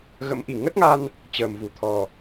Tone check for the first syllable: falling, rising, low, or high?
rising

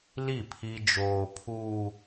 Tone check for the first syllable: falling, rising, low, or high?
falling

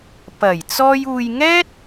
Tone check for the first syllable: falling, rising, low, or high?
low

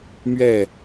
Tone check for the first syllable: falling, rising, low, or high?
falling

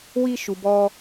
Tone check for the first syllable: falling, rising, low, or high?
high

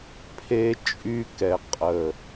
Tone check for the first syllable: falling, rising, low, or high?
high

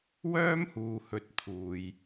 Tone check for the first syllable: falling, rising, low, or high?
high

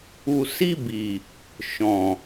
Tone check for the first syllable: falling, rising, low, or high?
low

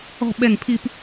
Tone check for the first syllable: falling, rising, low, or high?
falling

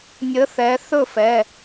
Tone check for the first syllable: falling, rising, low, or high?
rising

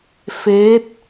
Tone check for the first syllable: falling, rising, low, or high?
rising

